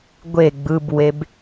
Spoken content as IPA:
ɡʷ e ɡ͡b ɯ b w e b

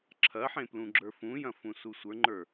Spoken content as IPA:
ǁʰ ɐ ħ ẽ p l ũ ɡ͡ǁ ə˞ f ũ j ɐ̃ f ũ s u sʷ ə˞ ŋ͡ǃ ə˞

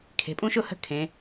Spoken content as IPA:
kʰ e̤˩˧ pʼ ũ˥ ʃ ʊ˥ h ə̤˥˧ kʰ ẽ˩˧

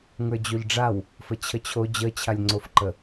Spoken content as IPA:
ŋ ə˞ d͡ʑ o ʎ ɖ͡ʐ a w | f ə t͡ɕʰ ə t͡ɕʰ o d͡ʑ ə t͡ɕʰ a lʲ ŋ͡ǀ o f ǃ ə

